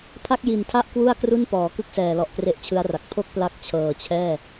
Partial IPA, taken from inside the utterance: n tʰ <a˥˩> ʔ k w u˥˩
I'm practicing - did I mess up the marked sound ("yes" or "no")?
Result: no